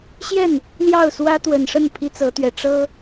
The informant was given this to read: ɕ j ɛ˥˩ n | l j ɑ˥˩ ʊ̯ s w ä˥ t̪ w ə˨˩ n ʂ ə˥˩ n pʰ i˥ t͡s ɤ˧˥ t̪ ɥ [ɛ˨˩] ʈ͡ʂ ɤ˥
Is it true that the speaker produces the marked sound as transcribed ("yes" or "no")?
yes